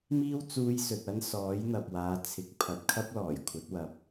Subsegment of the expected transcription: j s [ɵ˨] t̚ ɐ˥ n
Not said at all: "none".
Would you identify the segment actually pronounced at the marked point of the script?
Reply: ɵ˨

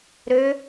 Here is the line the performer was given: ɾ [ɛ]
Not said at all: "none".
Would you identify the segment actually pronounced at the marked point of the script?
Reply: ø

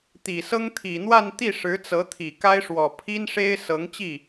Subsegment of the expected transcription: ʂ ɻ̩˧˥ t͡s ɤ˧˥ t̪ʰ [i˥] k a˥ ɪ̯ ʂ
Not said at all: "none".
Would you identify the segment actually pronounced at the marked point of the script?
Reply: i˨˩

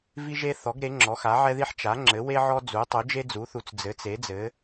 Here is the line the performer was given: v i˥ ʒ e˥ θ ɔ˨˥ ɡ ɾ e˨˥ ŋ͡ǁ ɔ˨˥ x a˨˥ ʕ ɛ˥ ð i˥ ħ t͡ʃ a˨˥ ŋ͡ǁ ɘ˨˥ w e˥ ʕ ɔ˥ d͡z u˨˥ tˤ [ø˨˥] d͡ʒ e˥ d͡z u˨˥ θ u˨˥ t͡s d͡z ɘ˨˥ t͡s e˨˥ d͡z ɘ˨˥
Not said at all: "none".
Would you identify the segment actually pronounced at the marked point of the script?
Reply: u˨˥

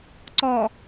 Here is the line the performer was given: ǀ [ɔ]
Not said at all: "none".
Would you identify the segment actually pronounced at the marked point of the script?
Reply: ɔ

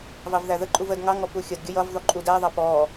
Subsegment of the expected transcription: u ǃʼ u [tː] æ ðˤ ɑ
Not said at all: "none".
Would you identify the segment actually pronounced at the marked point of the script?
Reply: d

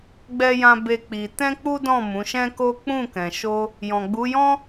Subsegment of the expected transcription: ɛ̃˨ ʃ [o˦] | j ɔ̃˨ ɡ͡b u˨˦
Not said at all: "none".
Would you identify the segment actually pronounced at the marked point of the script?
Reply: o˧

